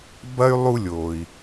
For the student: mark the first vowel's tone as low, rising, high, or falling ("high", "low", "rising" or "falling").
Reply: high